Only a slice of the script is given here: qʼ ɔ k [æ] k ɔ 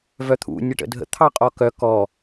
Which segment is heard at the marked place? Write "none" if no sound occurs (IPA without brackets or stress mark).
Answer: œ